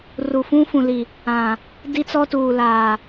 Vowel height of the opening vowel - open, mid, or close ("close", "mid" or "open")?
close